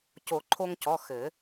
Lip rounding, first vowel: rounded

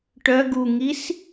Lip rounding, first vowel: rounded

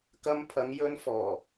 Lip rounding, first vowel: unrounded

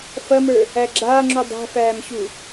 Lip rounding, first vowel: unrounded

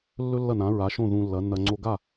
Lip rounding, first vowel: rounded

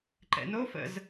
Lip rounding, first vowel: unrounded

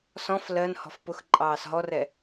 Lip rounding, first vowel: rounded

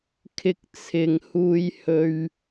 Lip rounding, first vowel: unrounded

